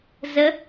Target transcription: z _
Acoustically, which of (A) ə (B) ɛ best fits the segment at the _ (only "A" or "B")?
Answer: A